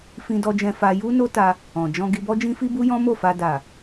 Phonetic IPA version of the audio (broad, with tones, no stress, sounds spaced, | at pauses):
f ĩ˧ d ɔ˧ d͡ʒ ɛ̃˧ f a˧ j u˦ n o˦ t a˧ | ɔ̃˨ d͡ʒ ɔ̃˧ ɡ i˧ b ɔ˦ d͡ʒ ĩ˦ f i˦ b u˦ j ɔ̃˦ m o˦˨ f a˧ d a˨